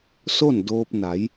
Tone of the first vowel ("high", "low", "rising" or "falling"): falling